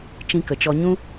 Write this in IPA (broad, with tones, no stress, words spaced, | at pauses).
t͡ʃĩ˧kə˨t͡ʃɔ˧ ɲũ˦